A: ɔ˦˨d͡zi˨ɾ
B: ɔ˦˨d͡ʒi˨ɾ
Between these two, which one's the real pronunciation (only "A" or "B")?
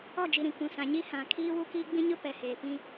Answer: B